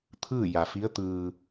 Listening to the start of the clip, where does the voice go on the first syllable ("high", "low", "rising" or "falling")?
falling